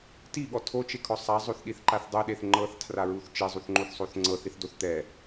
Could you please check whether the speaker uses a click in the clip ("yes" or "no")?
yes